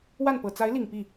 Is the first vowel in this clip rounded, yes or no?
no